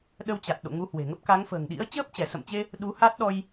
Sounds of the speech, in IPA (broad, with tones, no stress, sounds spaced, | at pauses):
ɗ ə˧ w t͡ɕ a˨˩ t̚ ɗ o̰˧˨ ŋ u˨˦ h w e̤˨˩ ŋ ə˦˥ p̚ k a˨˦ ŋ f ə̤ː˨˩ ŋ ɗ ḭ˧˥ ə̯ t͡ɕ əː˦˥ p̚ t͡ɕ ɛ˧˩ s ə̰˧˨ m t͡ɕ e˧ | ɗ u˨˦ h a˦˥ t̚ ɗ ɔ˧ j